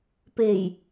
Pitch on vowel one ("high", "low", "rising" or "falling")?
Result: low